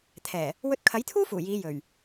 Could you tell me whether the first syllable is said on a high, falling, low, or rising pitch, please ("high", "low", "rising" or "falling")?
low